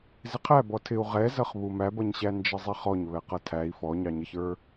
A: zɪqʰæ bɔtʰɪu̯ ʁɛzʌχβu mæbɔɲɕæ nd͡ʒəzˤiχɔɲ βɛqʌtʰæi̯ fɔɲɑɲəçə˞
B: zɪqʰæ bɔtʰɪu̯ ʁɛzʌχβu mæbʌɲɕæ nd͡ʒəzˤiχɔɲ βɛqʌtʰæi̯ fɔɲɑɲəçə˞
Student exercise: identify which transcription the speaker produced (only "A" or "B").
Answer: B